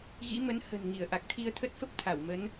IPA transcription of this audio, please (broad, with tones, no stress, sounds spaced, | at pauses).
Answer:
ɣ ḭ˧˥ m ə˨˦ n h ə̤˨˩ n ŋ i˧˩ ə̯ ʔ a˨˩ k̚ t̪ʰ i˧ ə̯ t̪ʰ ə˦˥ t̚ f ə˦˥ p̚ t̪ʰ a˧˩ w m ə˨˦ n